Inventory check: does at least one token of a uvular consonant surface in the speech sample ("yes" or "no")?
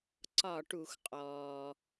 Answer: yes